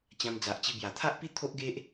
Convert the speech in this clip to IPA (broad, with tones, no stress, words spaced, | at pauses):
t͡ɕã˧md͡za˨ʔt͡ɕi˧ bja˨˩t̪ʰa˦ʔpi˦ t̪ʰo˦ʔɡe˦ʔ